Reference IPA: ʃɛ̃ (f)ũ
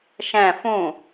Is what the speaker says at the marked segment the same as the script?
yes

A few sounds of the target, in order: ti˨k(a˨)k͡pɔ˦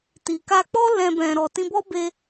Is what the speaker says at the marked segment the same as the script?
no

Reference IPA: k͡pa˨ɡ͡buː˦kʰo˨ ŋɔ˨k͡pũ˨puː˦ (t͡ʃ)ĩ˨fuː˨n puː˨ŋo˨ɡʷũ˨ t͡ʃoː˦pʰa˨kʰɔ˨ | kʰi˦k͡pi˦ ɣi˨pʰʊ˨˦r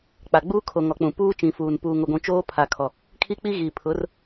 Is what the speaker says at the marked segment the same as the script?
yes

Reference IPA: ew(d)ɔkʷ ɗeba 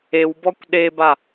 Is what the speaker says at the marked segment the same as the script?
no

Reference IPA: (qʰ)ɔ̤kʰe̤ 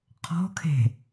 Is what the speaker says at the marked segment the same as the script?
yes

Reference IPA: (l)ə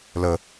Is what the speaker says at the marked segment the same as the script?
yes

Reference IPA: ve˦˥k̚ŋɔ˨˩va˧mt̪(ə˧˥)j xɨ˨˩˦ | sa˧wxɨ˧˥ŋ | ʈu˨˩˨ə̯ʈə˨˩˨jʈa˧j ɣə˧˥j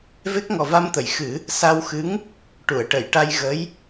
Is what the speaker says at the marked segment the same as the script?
no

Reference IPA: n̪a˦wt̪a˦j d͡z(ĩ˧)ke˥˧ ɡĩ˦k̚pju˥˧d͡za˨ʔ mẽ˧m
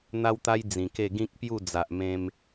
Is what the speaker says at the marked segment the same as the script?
no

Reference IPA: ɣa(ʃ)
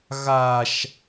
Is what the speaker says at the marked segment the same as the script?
yes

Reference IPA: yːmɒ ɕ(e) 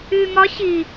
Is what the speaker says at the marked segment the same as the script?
no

